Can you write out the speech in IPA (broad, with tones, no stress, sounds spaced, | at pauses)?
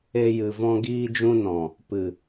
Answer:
e˧ j ɨ˨ v ɔ̃˧ ɡ iː˧ d͡ʒ ũ˧ n ɔ̃˨ | p ɨ˨